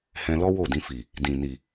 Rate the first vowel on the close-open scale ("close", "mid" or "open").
mid